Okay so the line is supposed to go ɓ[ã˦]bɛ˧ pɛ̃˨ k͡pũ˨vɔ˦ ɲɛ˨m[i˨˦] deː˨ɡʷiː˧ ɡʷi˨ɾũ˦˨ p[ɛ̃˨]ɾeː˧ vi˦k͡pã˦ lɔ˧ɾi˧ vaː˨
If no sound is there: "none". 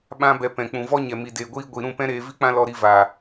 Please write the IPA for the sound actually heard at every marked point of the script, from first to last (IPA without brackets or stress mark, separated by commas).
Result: ã˦, i˨, ɛ̃˦